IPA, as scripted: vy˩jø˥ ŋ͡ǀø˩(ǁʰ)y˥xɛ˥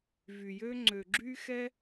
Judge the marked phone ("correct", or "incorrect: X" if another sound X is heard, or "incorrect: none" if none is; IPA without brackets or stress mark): incorrect: ɡ͡ǁ